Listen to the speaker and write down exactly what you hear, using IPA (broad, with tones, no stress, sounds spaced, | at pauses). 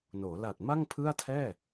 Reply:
n oː˩˦ l a˨˩ t̚ m a˥˩ ŋ pʰ ɯ˥˩ a̯ tʰ ɛː˥˩